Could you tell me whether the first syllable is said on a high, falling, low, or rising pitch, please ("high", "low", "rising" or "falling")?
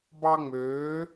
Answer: high